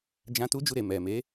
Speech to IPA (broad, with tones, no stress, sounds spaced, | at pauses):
d͡ʒ ã˦ t u˦ d͡ʒ u˧ ɾ e˨ m ɛ˨ m e˨˦